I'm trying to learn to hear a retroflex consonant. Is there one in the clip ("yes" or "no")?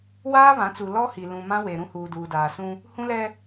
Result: no